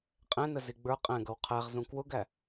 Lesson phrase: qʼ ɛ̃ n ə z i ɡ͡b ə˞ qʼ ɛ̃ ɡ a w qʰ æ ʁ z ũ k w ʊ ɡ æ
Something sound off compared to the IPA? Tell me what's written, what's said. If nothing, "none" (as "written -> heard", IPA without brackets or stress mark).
a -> ʌ